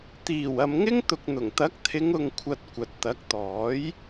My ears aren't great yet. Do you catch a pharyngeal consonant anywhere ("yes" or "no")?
no